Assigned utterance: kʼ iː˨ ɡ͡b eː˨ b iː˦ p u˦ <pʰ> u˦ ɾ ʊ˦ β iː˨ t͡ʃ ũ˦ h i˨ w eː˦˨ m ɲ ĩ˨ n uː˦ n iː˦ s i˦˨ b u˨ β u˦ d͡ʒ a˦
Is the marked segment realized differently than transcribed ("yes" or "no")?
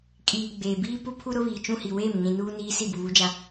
no